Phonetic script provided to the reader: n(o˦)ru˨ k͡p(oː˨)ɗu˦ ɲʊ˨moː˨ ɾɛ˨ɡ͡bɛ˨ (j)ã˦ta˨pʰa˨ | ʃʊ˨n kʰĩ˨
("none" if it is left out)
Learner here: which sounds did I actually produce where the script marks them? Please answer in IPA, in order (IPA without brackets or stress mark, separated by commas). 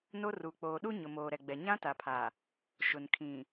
o˦, oː˨, ɲ